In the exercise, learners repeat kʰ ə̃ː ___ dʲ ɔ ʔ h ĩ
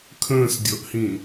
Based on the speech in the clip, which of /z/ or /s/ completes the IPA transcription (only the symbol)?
s